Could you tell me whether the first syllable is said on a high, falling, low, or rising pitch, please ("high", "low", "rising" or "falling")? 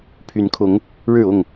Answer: rising